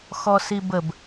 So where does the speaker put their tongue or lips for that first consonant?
velum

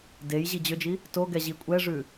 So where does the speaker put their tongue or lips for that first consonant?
tongue tip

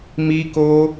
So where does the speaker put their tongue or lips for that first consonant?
lips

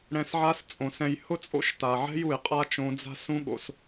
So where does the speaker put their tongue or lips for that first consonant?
retroflex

